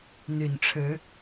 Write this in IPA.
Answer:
n̪ y˨˩ n ʈ͡ʂʰ ɻ̩˨˦

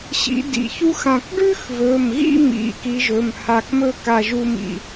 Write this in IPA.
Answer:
ɕ ḭ˨˦ d ḭ˩˧˩ ç u˥ x ã˧˩ k ɖ ʉ˥ x v ɵ˩˧˩ m ɣ ḭ˥˧ m ḭ˩˧˩ k i˨˦ ʒ ɵ˩˧˩ m h a˧˩ k m ɵ˥˧ k a˥˧ ʒ u˥ m ḭ˧˩

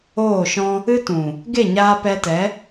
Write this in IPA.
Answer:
oː˦˨ ʃ ɔ̃˦ | ɨ˦ t ũ˨ | ɡ e˦˨ ɲ aː˧ p ɛ˧ t ɛ˨˦

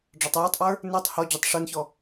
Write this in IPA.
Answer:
ɖ͡ʐ ɒ tˤ j ɔ tˤ ʔ ə˞ | n ə˞ tˤ h ɔ d͡ʑ ɒ tˤ ʂ ə˞ n ç ɔ

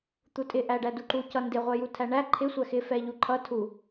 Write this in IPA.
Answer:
t̪ u tʼ ɪ ʔ æ ɖ æ d u ǃ u c ʌ n d ɪ ʁʷ ɛ j u tʰ æ ɳ æ ǃʰ ɪ sʷ æ x ɪ f ɛ ʎ u ǃʰ ʌ tʰ u

